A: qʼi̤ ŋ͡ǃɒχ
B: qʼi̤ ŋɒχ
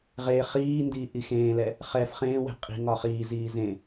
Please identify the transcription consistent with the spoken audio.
B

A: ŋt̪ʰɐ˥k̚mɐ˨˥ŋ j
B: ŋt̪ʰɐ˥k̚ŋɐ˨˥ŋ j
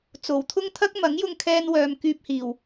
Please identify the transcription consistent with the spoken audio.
A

